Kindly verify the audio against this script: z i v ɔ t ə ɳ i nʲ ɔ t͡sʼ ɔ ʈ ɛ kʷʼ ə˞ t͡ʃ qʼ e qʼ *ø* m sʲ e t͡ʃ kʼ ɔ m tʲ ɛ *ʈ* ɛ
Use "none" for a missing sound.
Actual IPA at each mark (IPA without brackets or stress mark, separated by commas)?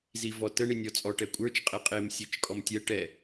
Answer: e, ʈ